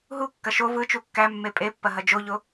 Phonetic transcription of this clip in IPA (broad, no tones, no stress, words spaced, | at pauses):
ɦukːɐ ʃo vɯt͡ʃu kːæ mːepʼepːɐ ɦɐd͡ʒoʎo